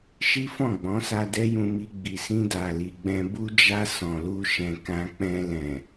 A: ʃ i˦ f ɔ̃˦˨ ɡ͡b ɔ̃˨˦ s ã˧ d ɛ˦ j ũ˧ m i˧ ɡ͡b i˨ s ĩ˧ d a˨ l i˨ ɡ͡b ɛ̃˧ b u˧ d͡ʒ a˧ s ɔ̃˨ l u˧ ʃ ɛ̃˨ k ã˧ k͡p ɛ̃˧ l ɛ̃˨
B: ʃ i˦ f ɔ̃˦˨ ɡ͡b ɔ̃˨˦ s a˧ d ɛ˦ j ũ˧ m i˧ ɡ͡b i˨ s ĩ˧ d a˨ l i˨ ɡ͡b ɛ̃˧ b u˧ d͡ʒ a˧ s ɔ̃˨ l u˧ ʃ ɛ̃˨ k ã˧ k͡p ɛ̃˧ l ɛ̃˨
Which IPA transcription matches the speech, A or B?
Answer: B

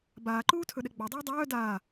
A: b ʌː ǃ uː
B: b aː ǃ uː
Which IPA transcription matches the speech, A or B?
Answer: B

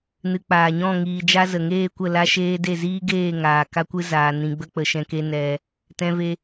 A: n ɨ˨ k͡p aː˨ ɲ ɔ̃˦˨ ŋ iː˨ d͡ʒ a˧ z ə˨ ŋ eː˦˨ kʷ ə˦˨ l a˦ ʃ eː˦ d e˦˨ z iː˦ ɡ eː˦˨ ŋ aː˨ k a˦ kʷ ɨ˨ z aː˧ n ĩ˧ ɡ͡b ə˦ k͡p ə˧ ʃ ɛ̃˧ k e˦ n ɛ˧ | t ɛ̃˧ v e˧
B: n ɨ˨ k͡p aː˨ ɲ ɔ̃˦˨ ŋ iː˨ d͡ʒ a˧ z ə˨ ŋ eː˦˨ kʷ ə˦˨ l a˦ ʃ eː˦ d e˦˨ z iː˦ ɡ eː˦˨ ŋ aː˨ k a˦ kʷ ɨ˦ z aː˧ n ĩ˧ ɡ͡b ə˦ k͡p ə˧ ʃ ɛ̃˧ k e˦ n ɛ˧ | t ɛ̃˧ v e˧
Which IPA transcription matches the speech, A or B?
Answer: B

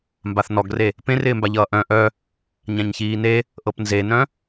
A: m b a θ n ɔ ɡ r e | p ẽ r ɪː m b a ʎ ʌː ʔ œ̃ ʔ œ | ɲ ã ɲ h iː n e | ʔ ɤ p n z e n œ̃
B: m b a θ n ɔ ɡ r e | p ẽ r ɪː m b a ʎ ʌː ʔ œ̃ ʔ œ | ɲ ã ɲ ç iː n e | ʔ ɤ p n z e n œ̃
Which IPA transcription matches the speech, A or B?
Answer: B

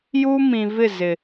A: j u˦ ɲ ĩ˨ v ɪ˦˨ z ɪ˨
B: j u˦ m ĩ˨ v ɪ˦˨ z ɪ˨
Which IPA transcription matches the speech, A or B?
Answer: B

